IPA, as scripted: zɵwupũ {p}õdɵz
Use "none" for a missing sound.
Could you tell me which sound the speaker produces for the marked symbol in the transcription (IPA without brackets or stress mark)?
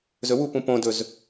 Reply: p